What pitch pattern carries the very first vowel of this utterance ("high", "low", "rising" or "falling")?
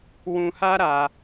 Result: low